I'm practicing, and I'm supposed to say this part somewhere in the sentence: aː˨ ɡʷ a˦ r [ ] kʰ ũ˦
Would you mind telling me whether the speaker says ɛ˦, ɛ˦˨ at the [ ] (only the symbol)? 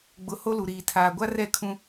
ɛ˦˨